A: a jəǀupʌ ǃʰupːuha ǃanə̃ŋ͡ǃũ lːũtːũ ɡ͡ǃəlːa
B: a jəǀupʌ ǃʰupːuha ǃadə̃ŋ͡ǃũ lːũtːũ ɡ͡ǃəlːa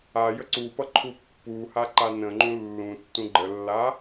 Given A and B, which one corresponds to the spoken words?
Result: A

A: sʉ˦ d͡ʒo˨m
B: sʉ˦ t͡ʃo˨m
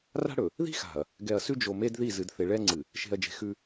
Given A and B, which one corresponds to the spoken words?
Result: A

